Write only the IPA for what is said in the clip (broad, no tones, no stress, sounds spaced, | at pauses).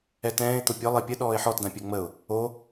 ɛ t ɛ̃ː ɪ̯ t̪ o pʲ ɔ lˠ ɜ pʲ ə ɗ ɔː ɪ̯ ħ ɔ t d ã pʲ ɜ ŋ͡m ə ʊ̯ | o